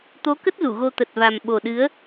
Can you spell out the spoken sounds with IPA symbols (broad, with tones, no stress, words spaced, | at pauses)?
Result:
t̪o˨˦kə˦˥t̚ zu˧˩ɣo˧t̪ə˨˩t̚va˨˩m ɓo˨˩ɗɨ˨˦ə̯